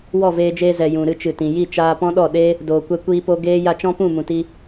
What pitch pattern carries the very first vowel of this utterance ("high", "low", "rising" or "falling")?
falling